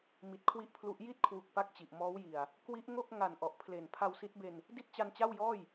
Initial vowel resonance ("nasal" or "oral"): oral